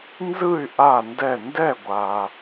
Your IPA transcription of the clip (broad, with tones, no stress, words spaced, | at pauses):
nzɯ˥˨y̯ ʔa˥˨ndɛ˥˨ ndɛ˥˨ɡʷa˨